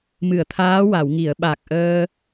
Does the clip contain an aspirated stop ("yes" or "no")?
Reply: yes